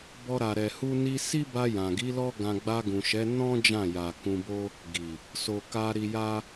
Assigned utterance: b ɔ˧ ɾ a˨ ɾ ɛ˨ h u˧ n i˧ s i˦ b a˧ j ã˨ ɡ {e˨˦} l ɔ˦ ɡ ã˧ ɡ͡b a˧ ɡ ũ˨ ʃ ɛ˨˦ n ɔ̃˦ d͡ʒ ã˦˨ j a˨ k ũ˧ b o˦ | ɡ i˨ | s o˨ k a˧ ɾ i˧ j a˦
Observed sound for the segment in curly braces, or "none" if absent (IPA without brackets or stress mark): i˨˦